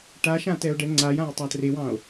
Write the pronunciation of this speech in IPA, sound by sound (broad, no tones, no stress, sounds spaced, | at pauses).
ʈ a ʃ ã t ɛ o̯ ɖ ɛ ŋ͡ǀ a j ã j tˤ a t r e w ɑ̃ o̯